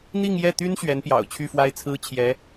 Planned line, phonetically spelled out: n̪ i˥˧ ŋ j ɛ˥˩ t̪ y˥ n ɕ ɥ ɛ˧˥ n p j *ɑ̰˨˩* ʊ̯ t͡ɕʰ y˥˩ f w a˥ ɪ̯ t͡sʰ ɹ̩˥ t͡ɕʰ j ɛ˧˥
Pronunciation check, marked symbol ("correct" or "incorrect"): correct